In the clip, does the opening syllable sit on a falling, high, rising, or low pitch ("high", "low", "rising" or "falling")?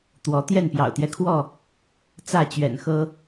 rising